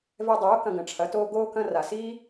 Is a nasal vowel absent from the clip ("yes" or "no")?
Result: no